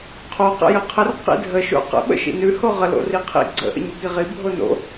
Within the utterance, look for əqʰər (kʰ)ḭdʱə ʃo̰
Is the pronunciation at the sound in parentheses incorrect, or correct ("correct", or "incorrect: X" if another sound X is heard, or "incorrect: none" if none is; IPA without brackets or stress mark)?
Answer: incorrect: q